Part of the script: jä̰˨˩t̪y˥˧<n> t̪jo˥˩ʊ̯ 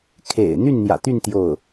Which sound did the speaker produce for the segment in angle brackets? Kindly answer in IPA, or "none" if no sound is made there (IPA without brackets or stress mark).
n